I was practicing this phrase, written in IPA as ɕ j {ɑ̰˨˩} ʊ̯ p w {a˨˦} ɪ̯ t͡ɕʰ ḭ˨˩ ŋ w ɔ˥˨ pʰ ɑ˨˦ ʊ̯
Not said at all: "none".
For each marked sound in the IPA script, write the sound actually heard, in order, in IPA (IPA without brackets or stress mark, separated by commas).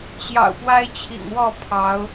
ɑ̰˨˩, a˦